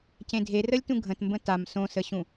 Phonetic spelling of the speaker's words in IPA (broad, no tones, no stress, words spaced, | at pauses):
cẽdʱerəlʲtũ ɡʱə̃tmbə̃ tam sõsəɕũ